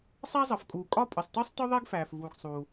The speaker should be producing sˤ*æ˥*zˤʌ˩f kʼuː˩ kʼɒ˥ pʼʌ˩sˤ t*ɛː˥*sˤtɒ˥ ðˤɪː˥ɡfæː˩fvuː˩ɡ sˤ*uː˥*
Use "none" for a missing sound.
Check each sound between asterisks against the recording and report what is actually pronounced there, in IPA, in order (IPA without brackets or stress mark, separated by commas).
æ˥, əː˥, uː˩